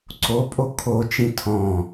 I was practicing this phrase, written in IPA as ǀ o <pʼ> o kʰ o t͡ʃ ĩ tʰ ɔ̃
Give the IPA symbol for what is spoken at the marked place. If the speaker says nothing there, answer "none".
pʼ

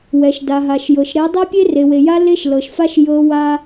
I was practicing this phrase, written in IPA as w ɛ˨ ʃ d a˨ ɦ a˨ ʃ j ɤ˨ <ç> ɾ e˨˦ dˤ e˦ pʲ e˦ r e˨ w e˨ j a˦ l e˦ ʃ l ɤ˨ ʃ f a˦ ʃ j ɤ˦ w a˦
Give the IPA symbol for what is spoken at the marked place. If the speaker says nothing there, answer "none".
ʃ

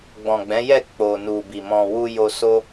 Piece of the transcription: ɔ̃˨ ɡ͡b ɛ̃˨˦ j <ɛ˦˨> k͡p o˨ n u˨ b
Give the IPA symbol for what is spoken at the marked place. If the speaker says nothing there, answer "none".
ɛ˦˨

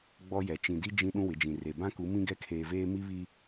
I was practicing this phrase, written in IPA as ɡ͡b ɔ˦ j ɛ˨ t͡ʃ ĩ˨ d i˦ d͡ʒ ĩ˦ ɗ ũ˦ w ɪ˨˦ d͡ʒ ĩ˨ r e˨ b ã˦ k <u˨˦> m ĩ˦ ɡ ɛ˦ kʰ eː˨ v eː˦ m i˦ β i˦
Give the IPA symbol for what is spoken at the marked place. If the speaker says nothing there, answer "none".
u˨˦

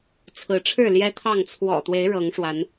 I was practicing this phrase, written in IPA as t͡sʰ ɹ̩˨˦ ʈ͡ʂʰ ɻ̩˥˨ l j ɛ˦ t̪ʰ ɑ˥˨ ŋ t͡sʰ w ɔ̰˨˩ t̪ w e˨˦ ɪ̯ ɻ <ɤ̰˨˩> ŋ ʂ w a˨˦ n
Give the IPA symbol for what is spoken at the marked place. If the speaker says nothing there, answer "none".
ɤ˨˦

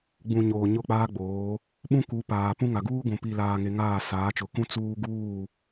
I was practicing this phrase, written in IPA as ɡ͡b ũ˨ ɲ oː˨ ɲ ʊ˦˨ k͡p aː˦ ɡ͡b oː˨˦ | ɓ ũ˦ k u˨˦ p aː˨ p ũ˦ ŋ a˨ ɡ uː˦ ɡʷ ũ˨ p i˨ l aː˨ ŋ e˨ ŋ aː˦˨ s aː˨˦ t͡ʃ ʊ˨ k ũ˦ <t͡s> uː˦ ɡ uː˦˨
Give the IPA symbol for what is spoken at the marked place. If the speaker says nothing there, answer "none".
t͡s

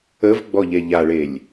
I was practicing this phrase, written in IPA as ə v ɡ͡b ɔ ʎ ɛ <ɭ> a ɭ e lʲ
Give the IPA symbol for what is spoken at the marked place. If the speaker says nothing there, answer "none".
ʎ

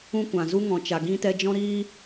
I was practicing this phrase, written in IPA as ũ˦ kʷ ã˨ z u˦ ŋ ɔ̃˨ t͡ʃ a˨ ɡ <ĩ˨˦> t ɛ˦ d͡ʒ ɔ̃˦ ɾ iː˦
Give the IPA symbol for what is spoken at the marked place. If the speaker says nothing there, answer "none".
ĩ˦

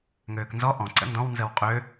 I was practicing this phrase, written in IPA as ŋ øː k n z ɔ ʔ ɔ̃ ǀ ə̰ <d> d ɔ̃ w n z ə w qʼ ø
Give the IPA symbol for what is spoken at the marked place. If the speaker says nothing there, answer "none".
n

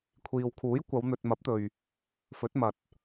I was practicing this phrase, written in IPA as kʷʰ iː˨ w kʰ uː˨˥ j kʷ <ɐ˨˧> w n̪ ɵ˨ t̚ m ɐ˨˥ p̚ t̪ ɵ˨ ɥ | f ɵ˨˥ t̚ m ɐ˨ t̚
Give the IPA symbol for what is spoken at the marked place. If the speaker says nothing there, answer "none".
ɐ˨˧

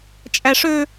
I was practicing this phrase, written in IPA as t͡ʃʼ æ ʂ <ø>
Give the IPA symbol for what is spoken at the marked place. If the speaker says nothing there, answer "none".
ø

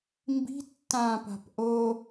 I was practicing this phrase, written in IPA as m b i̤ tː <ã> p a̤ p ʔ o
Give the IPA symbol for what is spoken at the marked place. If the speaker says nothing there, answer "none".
ã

